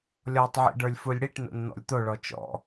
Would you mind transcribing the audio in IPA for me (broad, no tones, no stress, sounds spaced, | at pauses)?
lʲ ɔ tˤ ʕ ḭ ɖ ə˞ lʲ f u lʲ ɽ i ʈ n o̰ n n̪ ɔ̰ lʲ t̪ o ɭ ɔ t͡ʃ ɔ̰